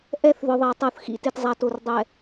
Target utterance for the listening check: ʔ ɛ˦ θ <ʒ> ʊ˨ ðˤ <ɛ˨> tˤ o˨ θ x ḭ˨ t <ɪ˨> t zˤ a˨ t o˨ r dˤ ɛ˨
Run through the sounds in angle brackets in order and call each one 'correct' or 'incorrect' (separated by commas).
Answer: incorrect, correct, correct